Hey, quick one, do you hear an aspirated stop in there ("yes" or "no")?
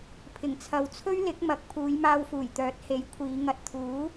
yes